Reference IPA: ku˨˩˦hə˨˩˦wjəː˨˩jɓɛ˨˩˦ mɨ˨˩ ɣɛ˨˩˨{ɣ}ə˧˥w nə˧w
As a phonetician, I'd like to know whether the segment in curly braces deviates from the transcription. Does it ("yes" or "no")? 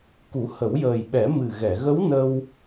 no